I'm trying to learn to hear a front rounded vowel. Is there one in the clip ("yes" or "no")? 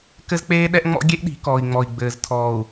no